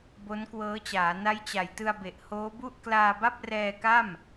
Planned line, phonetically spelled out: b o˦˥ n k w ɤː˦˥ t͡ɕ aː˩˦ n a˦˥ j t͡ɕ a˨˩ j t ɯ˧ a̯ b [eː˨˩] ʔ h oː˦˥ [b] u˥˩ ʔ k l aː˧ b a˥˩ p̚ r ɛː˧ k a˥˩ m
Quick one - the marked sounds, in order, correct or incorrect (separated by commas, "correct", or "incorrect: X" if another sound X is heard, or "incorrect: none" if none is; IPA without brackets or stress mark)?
incorrect: e˨˩, correct